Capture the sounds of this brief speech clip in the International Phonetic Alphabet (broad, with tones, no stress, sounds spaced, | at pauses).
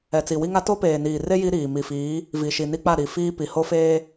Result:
ɛ˨ t͡s i˨ w i˦ ŋ a˦ t o˦ p eː˨ n iː˨ r e˦ j i˦ ɾ iː˨ m i˨ f iː˨˦ | v i˨ ʃ i˨ n i˦ k͡p a˦˨ ɾ i˨ f iː˦ p i˨ h o˦ f eː˦